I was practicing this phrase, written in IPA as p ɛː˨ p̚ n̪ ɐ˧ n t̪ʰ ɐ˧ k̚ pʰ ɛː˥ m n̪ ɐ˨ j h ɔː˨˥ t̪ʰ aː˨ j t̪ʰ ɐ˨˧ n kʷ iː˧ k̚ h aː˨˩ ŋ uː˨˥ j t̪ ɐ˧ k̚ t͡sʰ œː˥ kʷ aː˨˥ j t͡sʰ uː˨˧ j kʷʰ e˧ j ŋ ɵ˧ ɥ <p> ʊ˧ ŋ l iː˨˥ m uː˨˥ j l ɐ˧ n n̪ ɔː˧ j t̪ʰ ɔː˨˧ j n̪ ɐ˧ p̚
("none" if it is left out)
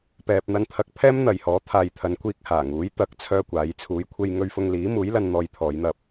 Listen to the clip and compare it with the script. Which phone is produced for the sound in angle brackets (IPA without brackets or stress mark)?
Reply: f